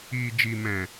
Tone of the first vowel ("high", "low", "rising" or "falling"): low